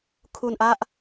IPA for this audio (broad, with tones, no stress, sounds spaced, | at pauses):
kʰ u˧ n ʔ a˦˥ ʔ